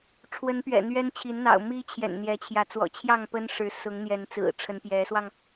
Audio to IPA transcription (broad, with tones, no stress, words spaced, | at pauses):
ʈ͡ʂʰwə˨˦n pɥɛ̰˨˩n̪ɥɛ˦nt͡ɕʰi˨˦nn̪ɑ̰˨˩ʊ̯ mi˦t͡ɕʰjɛ̰˨˩nn̪jɛ˨˦t͡ɕʰjä˨˦ t͡swɔ̰˨˩t͡ɕʰjɑ˥˨ŋ pə˦nʂɻ̩˨˦ sʊ˨˦ŋn̪jɛ˨˦n t͡sɹ̩˨˩ʈ͡ʂʰə˨˦n pjɛ˨˦swɑ˧ŋ